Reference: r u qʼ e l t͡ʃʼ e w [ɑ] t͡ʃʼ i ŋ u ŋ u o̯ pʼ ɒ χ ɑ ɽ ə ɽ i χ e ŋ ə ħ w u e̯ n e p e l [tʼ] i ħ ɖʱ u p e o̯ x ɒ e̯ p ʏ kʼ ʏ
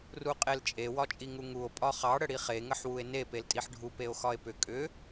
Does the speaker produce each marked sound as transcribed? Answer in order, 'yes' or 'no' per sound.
no, yes

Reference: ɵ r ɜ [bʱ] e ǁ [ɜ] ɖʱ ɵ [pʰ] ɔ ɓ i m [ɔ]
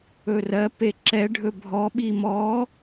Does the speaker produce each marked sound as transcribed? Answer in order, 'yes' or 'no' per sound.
no, no, no, yes

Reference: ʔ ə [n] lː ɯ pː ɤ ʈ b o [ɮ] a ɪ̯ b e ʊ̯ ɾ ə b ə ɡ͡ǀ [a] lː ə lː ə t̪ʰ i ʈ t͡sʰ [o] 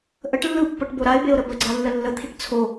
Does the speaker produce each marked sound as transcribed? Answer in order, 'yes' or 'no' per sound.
no, no, yes, yes

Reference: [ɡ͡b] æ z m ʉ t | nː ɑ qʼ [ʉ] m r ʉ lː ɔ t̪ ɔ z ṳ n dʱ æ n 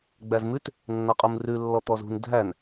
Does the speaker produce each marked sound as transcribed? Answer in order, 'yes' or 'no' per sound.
yes, no

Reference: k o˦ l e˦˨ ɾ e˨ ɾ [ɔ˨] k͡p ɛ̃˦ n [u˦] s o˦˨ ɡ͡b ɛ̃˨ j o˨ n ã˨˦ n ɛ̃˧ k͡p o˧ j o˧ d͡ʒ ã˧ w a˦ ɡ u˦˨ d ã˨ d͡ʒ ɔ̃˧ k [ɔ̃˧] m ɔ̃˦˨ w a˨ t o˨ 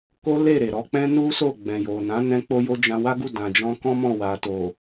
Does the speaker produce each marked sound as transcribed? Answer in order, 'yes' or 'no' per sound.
no, yes, no

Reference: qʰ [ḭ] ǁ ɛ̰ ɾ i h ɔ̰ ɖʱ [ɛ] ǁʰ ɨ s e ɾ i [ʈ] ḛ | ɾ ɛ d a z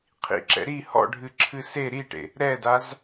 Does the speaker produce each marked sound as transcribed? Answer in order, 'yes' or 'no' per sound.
yes, no, yes

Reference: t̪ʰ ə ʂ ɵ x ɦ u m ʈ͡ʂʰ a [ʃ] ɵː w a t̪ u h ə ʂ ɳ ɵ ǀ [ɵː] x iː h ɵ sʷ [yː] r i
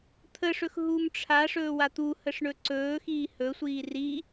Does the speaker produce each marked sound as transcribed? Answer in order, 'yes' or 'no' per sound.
no, yes, no

